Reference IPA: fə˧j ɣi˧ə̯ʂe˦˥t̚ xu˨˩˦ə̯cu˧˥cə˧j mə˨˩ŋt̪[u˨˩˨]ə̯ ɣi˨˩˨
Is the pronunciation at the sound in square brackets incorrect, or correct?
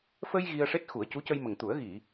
incorrect